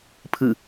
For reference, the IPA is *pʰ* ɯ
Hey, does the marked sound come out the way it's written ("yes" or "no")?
yes